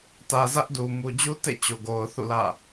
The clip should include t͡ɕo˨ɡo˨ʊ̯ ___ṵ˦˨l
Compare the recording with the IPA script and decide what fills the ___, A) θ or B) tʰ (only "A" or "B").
A